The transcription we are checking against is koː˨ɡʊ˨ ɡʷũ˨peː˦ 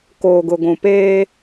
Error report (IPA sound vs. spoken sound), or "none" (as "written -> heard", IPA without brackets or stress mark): none